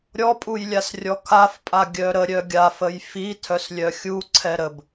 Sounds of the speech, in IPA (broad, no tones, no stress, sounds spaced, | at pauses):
ɾʲ ɔ pʼ u j lʲ a s rʲ ɔ kʰ a f pʼ a ɡʲ œ ɾ ə ɾʲ œ ɡʲ a f ə j f i tʰ œ s lʲ œ xʲ u ǀʰ ɛ ɾ ə b